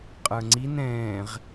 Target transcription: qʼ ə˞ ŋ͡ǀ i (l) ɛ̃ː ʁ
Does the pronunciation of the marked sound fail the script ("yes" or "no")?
yes